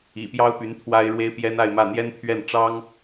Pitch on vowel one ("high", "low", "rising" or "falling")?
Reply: low